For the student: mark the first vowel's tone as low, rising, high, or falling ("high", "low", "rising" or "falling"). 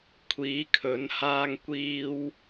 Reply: rising